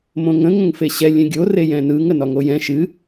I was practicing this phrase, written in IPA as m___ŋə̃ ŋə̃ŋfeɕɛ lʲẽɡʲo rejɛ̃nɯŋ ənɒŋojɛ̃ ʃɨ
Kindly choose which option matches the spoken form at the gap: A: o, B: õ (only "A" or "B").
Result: B